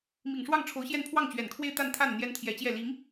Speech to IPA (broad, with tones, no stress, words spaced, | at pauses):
mi˨˩ŋʂwɑ˥˩ŋʈ͡ʂʰo˧˥ʊ̯ɕjɛ˥˧n pʰwɑ˥˩ŋt͡ɕɥɛ˨˩nkʰwe˥˧ɪ̯ t̪a˥˧nt̪ʰa˥˩n n̪jɛ˥nt̪ʰjɛ˧˥t͡ɕjɛ˥˩ li˧˥ŋ